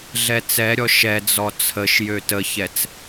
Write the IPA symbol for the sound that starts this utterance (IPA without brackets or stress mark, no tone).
ɮ